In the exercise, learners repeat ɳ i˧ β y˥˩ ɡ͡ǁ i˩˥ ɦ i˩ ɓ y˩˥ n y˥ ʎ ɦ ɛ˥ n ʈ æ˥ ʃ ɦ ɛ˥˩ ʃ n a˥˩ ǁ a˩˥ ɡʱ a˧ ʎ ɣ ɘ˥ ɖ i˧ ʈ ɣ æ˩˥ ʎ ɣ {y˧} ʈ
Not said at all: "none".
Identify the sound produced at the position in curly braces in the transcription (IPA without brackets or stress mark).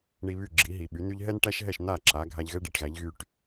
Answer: y˧